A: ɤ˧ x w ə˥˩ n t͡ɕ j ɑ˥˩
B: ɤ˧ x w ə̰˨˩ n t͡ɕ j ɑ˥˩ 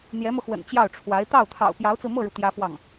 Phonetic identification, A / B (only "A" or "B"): B